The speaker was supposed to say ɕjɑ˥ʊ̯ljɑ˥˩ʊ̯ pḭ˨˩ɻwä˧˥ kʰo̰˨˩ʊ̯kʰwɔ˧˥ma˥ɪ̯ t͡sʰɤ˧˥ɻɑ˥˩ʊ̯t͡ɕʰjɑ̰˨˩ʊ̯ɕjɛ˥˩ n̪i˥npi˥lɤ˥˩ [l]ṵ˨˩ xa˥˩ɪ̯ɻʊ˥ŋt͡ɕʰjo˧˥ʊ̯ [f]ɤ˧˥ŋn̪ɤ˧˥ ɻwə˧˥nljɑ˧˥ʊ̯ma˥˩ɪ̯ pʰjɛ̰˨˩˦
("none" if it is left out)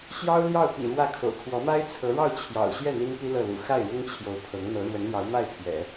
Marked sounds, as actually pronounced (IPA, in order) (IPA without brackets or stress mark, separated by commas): l, pʰ